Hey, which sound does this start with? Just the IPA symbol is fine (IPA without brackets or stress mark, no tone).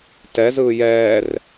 t